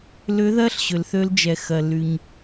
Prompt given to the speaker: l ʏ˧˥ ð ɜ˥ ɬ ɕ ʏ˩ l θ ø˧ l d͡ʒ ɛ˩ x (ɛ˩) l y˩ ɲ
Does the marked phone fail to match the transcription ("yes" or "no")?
yes